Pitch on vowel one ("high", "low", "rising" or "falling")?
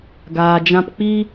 low